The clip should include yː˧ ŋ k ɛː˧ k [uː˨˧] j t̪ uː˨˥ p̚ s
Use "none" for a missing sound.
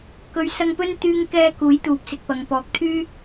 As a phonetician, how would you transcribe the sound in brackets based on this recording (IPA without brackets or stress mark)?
uː˨˥